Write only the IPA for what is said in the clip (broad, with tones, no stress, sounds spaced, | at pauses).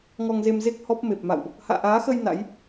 ŋ ɔ˧ ŋ z e˧ m z e˦˥ k̚ h ɔ˦˥ p̚ m e˨˩ p̚ m a̰˧˨ w ʔ | h a̰ː˧˨ ʔ aː˨˦ x ə˧ j n a̰˧˥ j